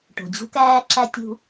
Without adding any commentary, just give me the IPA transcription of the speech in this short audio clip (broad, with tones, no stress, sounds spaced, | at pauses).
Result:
ʈ o̤˨ d͡ʑ ṳ˦ k æː˦ ǁ æ˦ tʲ ṳ˦